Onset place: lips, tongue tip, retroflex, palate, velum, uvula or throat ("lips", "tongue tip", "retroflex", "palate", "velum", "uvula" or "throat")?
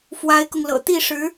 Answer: lips